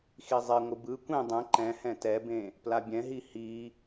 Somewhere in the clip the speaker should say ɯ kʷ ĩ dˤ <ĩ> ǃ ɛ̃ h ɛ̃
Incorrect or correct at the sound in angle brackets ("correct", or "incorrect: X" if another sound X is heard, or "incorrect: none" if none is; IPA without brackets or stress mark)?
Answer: incorrect: ẽ